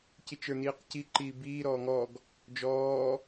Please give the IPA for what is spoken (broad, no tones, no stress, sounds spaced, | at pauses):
c i t͡ʃ ə˞ n iː q c i ǃ iː b iː ɾ ɔː ŋ ɔ ɡ | d͡ʒ ɔː